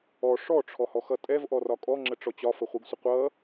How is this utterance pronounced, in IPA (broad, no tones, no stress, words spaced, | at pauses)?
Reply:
ɔ ʂɔʈ͡ʂʰɔhɔxʌ tʼɛvʔɔrɒ kʼɔŋ͡ǁəʈ͡ʂɔ t͡ɕɒfəχʷiɡsʷə qʷʌ